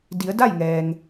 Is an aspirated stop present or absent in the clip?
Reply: absent